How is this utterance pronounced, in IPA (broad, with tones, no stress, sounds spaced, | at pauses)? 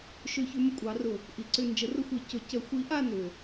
ʃ ʏ˧˩˧ ç ʏ˨˦ m ə˦˨ kʷʼ ɑ˨˦ r ʊ˧˩˧ | ʔ i˨˩ ǀ ʏ˦˨ n d͡ʒ ə˨˦ r ʊ˦˨ xʷ i˧˩˧ c ʊ˨˩ c ə˧˩˧ xʷ i˨˦ ʔ a˦˨ n ʏ˨˩